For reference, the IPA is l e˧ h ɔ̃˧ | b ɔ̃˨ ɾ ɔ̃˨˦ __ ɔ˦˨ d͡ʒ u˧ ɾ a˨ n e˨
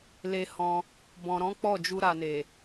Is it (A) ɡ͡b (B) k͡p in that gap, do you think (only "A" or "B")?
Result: B